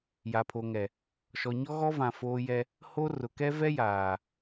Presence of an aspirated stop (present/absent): present